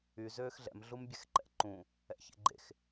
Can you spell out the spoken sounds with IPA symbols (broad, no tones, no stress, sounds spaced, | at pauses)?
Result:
y z øː x ɮ ɛ̰ m ɮ u m bʲ ɛ x ǃ ɛ̰ ǃ ũ | ɛ̰ ç ḛ ɡ͡ǃ ḛ x